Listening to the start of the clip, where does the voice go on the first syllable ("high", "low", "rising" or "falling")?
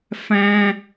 high